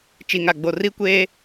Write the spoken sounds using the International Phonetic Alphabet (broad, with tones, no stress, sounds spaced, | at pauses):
t͡ʃ i˨ ŋ a˨ ɡ͡b o˨ r i˦ kʷ eː˦